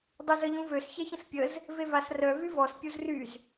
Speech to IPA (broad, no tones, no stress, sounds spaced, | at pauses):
dˤ y z ə ʎ ũ v ø s ç ɛ ç ə̃ s pʲ ə z | v e v a s r œ v y v ɔ s pʲ u z r y z